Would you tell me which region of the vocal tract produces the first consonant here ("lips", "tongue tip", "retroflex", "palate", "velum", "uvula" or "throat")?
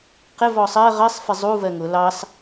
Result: uvula